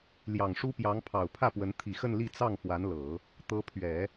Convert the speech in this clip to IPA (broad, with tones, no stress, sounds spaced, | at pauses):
l j ɑ˨˩ ŋ ʂ u˥ p j ɑ˧˥ ŋ pʰ ɑ˨˩ ʊ̯ pʰ ä˥˩ p w ə˧˥ n t̪ʰ i˨˩ x ə˥˧ n l i˥˧ t͡s ɑ˥˩ ŋ f w a˧˥ n l ɤ˨˩˦ | t̪ ɤ˧˥ pʰ ɥ ɛ˨˩˦